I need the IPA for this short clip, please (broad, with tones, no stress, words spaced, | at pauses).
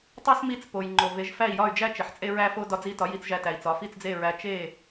tˤo˥smi˥˩t͡s po˩jŋ͡ǃo˩ ve˩˥ʒfæ˥˩i̯jɒ˥˩y̯d͡ʒæ˥ t͡ʃe˩ħt͡sʼe˥ɹæ˥fo˥ dɒ˧d͡zi˧tɒ˩˥ ji˧t͡sʒæ˧tæ˩i̯t͡sɒ˩˥ fi˥˩t͡sd͡ze˥˩ɹæ˧ t͡ʃe˥˩